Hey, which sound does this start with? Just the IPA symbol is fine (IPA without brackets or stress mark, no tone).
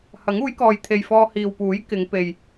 h